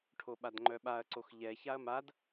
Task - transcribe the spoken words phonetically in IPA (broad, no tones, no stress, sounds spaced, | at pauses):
ʈʰ o ɓ a d ŋ͡ǃ œ ɓ a ɐ̯ ǀ o x ʎ ɛ ç a ɐ̯ m a d